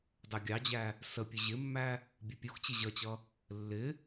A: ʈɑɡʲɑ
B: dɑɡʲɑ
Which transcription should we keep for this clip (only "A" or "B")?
B